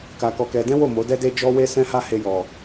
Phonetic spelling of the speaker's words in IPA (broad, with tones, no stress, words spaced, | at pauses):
ka˧kɔ˧kɛ˧ dɛ̃˦wo˦˨ mo˨˦dɛ˦de˦ d͡ʒɔ˦we˦sɛ̃˦ha˦ he˧jɔ˨